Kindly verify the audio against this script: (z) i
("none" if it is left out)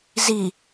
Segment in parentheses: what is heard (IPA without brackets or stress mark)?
z